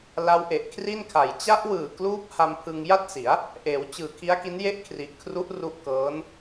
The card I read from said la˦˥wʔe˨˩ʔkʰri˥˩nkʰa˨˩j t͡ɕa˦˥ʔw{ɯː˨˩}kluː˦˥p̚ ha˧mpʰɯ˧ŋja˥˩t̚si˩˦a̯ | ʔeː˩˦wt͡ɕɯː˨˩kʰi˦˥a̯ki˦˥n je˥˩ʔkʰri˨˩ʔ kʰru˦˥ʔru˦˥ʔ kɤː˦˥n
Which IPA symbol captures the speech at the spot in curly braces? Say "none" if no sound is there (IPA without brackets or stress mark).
ɯː˨˩